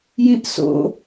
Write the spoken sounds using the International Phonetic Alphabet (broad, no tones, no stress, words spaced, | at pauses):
jĩʔso̰